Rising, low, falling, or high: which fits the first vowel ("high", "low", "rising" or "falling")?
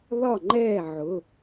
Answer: falling